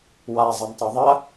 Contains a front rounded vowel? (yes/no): no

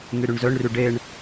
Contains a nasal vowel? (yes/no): no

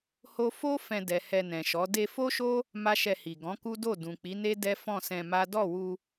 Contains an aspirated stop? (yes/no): no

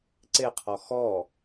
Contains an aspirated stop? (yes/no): yes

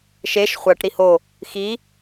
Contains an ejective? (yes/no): no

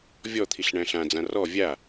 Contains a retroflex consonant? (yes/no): yes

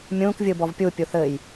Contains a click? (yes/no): no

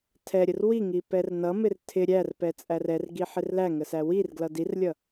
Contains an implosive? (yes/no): no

